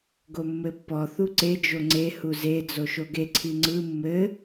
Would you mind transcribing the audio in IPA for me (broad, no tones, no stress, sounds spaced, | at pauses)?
ɡ o mː ɘ pː ɔ θ u ǀ e d͡ʒ o ŋ͡ǀ e h u z e d͡z o ʃ o ɡ e ǀʰ i ŋ͡ǀ ɯ mː ɘ